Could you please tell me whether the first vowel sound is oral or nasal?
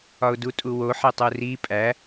oral